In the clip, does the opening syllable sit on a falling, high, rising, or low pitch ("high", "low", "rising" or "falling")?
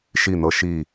falling